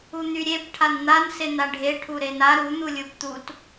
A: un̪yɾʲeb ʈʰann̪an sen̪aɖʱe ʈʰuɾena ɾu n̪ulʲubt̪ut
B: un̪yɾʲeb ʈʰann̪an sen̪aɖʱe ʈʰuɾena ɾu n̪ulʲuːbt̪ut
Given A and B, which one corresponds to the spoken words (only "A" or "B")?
A